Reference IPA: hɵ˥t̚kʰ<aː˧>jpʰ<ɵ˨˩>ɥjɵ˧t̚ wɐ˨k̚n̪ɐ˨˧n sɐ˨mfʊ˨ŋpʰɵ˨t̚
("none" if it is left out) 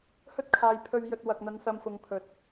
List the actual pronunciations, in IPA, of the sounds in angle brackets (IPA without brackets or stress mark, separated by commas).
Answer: aː˧, ɵ˧